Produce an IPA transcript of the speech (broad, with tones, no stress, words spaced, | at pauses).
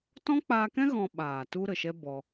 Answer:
tɔ̃˦k͡paː˧kɛ̃˦ ɣɔ̃˧ɓaː˨ tu˦ɾə˨ʃɛ˦ bɔ˧